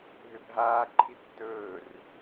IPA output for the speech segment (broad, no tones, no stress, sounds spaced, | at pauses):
ɦ ʏ bʱ aː ǃʰ i tː ɵː r